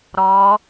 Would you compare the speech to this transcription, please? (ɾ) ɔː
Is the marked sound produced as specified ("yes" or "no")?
yes